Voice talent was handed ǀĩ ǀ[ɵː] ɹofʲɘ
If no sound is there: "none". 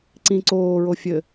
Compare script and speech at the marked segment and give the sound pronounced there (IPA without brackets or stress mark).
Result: oː